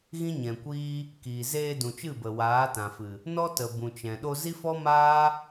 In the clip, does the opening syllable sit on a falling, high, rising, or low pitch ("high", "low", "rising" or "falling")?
high